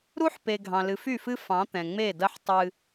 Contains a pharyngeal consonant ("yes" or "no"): yes